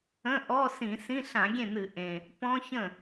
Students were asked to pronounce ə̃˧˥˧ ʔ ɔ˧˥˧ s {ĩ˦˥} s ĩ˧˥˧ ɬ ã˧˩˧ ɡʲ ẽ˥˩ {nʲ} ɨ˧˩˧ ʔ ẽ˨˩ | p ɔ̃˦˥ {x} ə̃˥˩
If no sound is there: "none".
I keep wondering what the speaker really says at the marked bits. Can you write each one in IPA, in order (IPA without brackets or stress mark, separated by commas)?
ĩ˧˩˧, n̪, ç